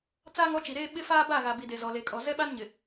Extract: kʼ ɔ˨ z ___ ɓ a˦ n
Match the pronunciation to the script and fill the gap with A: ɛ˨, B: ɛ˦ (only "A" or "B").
B